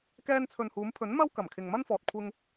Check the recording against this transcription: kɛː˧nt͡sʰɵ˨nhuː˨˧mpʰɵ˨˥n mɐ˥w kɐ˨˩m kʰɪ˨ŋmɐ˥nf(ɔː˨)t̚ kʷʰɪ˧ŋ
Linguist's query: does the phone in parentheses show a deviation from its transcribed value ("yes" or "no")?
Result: no